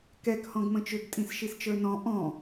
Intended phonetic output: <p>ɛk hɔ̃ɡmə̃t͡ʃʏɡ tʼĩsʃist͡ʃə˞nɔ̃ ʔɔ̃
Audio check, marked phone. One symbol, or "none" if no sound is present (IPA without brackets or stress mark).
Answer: k